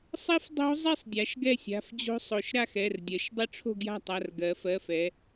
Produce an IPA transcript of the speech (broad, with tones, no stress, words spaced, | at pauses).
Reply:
sˤɪ˦˥f dˤo̤˦˥zˤi˥˩sˤdʲa˩˧ʃ ɡɛ˥˩sʲa̤˩˧˩fd͡ʑo̤˦˥ sˤo˩˧ʃ ɾa˥˩xɛ˩˧˩rdʲɜ˩˧ʃdˤɪ˦˥ ʈ͡ʂʰo̤˥˩ɡja̤˥˩tˤa˩˧˩r ɡɜ˩˧fɜ˩˧˩fɛ˩˧